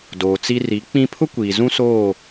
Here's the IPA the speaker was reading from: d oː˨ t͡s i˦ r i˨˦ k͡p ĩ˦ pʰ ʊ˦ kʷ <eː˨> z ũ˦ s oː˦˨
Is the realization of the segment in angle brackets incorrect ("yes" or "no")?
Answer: yes